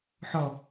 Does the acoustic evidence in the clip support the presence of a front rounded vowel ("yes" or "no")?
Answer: no